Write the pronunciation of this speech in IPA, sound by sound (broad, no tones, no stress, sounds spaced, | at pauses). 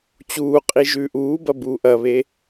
t͡ɕ uː qʼ i ʒ ʉː ʔ uː b ɐ b uː ʔ ɐ β e